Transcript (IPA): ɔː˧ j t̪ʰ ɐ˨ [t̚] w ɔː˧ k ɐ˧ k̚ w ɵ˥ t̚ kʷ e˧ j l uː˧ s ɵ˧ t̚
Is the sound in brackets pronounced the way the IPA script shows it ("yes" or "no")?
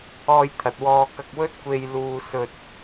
yes